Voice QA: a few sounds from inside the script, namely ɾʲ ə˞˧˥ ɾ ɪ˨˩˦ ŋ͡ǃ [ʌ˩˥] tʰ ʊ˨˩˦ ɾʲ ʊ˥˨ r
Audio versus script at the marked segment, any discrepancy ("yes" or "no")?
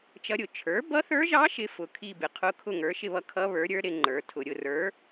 yes